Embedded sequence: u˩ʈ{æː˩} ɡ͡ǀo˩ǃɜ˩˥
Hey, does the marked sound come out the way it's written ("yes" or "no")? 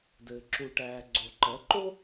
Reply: yes